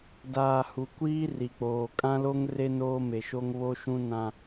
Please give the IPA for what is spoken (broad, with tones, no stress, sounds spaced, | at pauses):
d aː˨ h u˨ kʷ iː˦ r i˨ k͡p oː˨ kʼ ã˦ l o˦ ŋ r e˦ n oː˦ m e˨ ʃ o˦ ŋ β o˦ ʃ ũ˦ n ã˦